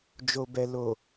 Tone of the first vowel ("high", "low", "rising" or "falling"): low